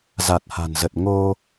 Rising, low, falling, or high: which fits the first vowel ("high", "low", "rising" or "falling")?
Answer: low